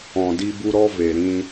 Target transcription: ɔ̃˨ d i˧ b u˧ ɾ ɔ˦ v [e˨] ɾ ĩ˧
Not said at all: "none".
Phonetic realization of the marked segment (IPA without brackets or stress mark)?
e˨